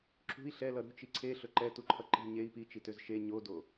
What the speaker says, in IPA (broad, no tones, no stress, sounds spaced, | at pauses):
ǁ ṳ i̯ ɬ ɛ l ʌ ɾ ṳ t͡ʃ i ǀʰ e ɬ ɵ ǃ ɛ t u ǃʰ ʌ ǃ i̤ ɲ e i̯ p i t͡ʃ i t ø z ʃ e ɲ o d o